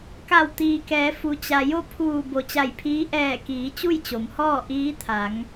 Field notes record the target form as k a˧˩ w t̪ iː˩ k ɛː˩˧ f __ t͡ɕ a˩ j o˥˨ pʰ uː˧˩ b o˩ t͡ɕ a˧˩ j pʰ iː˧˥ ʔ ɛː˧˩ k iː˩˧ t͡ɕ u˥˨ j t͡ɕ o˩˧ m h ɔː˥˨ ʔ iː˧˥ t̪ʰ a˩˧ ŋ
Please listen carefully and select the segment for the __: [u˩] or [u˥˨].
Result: u˩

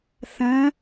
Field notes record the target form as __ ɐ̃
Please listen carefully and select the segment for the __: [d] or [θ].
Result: θ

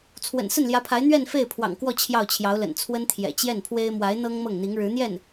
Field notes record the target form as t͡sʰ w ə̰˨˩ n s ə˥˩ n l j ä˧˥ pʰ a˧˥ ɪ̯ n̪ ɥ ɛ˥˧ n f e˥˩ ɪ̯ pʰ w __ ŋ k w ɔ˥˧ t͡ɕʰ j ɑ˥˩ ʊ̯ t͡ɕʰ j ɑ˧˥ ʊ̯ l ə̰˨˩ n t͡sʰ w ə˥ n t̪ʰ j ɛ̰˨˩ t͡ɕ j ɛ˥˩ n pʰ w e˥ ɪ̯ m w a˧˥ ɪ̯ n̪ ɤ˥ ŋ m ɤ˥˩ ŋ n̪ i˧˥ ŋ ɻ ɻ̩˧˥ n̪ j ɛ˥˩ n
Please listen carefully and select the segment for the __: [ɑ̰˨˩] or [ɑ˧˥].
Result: ɑ̰˨˩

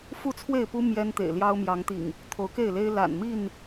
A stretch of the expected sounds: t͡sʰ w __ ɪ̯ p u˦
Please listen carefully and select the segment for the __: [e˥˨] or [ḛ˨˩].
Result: e˥˨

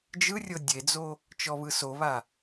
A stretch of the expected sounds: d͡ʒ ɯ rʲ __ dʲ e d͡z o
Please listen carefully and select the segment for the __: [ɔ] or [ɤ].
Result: ɤ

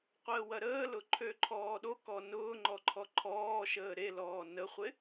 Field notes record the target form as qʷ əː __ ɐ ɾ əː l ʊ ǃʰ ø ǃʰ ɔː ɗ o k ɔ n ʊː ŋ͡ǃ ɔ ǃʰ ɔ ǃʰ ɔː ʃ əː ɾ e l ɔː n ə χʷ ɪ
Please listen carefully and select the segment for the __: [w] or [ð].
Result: w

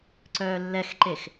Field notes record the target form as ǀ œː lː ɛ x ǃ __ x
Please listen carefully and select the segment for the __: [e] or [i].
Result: e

